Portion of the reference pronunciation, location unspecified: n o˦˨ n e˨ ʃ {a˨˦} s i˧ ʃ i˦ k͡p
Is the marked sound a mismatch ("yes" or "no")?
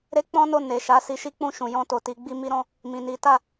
no